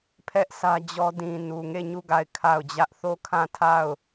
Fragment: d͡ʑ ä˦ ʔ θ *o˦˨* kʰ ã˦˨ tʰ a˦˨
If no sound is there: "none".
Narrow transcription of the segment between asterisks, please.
o˦˨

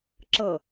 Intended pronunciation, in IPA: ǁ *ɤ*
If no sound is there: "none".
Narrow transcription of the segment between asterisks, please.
ɤ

